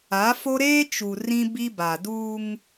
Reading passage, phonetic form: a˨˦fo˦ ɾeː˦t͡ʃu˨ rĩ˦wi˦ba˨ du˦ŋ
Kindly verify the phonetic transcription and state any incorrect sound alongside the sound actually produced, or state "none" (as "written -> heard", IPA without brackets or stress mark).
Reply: w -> b